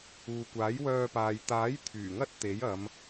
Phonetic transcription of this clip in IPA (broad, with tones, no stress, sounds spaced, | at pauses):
uː˨ kʷ aː˨˥ j w œː˧ p aː˨ j t̪ aː˨˥ j t̪ʰ yː˨˩ ŋ ɐ˥ t̚ t̪ e˨˥ j ɐ˨˧ m